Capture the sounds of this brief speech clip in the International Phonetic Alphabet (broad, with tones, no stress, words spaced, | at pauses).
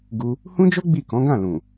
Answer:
ɡu˧ | hũ˦d͡ʒo˦ ɡ͡bi˦˨kɔ̃˨˦ɡã˦˨lũ˨